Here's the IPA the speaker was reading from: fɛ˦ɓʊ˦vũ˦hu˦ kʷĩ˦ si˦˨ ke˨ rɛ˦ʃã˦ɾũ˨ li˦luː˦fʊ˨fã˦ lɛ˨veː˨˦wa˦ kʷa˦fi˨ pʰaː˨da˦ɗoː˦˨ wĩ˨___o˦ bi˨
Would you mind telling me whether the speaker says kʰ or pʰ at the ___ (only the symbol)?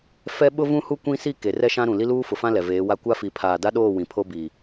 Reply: pʰ